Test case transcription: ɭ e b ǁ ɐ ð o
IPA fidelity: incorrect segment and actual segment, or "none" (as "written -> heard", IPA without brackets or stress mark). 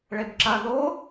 none